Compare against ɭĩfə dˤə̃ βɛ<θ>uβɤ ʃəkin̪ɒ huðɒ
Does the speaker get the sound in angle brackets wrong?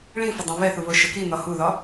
no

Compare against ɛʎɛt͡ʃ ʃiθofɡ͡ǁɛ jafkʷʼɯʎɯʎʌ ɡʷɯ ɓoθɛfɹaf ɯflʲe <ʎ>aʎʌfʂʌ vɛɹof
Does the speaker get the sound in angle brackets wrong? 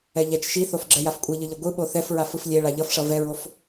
yes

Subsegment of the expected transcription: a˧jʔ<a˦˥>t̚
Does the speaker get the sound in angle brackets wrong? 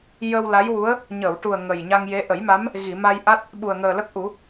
no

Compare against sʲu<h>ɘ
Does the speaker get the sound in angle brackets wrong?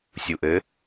yes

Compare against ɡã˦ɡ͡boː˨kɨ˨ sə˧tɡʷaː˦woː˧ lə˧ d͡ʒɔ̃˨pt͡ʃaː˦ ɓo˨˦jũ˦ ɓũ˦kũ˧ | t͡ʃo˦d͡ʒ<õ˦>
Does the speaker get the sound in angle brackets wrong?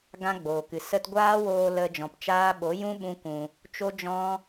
yes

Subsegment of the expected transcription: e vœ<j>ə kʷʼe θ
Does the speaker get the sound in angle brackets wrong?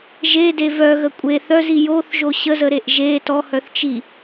yes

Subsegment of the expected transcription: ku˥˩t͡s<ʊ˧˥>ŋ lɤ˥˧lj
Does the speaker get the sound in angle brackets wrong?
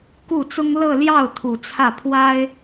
yes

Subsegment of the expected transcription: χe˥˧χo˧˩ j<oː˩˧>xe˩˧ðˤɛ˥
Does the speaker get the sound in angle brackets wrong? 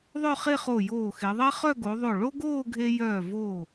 yes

